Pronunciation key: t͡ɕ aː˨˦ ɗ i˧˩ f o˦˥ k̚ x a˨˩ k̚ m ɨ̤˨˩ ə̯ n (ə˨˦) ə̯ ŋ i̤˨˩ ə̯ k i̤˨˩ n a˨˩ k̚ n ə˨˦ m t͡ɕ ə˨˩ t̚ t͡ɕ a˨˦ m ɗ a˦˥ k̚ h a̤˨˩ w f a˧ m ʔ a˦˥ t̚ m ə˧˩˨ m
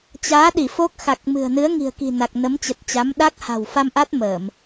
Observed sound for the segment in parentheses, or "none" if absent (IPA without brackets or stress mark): ɨ˨˦